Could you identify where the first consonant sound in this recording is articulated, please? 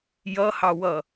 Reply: palatal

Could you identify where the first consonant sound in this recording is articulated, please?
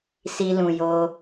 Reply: alveolar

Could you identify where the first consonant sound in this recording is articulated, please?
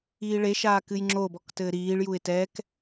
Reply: retroflex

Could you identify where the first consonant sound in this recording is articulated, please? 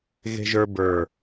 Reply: velar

